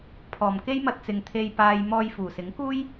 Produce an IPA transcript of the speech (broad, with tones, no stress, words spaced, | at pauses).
pʰɔː˨˩mke˥jmɐ˧t̚t͡sɪ˨ŋ t̪ʰe˨jpaː˨j mɔː˧j fuː˨˩sɪ˨˥ŋkuː˥j